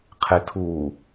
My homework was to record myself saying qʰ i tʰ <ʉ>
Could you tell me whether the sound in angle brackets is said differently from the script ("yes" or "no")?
yes